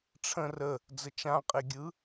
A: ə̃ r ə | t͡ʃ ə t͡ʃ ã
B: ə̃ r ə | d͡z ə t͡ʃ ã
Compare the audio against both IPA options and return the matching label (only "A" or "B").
B